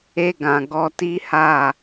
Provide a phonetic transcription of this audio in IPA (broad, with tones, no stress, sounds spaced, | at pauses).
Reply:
e˧ ɡ ã˨ ɡ ɔ˧ t i˦ h a˦˨